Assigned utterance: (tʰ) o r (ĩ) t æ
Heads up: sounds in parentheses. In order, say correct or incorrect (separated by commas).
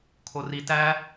incorrect, incorrect